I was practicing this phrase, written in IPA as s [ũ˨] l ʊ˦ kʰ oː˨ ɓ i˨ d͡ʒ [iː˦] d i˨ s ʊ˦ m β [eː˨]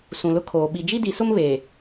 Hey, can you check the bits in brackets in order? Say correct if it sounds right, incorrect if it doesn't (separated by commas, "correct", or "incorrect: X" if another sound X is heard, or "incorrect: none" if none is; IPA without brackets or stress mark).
correct, incorrect: i˦, correct